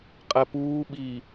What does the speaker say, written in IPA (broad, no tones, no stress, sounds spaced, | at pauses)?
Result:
qʼ ɛ p uː ɓ iː